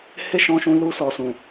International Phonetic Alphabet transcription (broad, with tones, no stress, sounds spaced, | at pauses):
h e˦ ʃ ɔ̃˧ ʃ ũ˧ l u˧ s ɔ˨ s ũ˨